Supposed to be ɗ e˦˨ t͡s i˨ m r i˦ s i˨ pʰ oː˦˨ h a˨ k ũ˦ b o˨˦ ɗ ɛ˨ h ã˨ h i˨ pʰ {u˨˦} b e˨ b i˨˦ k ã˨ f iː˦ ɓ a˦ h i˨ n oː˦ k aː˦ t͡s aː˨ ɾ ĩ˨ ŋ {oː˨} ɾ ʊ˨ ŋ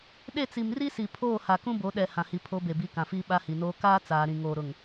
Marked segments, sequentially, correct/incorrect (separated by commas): incorrect, correct